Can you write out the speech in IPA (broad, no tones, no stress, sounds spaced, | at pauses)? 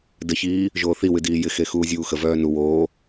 d ə ç iː | ʒ oː θ i w ɨ d iː j ɪ x e x uː zʲ uː x ə v œː n u w oː